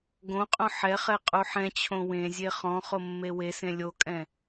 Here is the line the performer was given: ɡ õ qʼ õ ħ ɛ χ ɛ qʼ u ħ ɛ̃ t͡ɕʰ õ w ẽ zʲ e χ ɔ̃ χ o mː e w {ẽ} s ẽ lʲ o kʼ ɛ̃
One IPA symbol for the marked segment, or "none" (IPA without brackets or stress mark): e